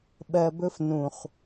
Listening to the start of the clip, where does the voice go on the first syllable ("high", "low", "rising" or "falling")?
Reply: low